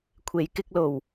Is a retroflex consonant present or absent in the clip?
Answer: absent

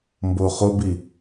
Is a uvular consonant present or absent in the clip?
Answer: present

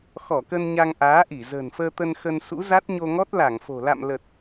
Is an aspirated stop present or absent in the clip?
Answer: absent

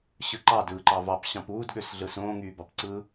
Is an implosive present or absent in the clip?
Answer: present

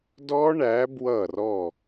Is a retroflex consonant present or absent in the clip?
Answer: present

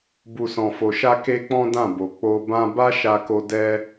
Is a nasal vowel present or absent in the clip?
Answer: present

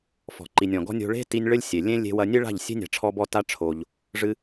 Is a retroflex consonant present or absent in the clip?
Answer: present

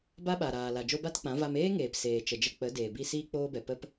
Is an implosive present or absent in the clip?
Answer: present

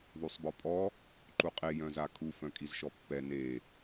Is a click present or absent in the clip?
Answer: present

